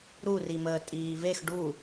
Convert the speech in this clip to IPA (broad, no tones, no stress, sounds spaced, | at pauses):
ɾ u r i m əː tʼ iː v e x ɖ u